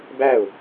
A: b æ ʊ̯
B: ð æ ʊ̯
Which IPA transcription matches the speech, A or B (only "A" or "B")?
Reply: A